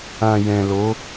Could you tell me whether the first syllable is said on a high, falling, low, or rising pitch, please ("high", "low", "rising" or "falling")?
low